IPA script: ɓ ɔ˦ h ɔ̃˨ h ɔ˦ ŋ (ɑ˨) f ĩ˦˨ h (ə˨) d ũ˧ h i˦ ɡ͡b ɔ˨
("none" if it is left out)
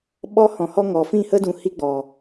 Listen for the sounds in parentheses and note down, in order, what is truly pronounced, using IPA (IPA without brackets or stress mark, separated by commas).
ɔ˨, ə˦